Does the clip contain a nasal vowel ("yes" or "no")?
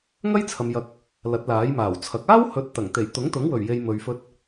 no